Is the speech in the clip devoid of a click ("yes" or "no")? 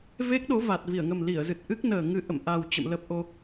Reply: yes